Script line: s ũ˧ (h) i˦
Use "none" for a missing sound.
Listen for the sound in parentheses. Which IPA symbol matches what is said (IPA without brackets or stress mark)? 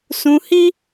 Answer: h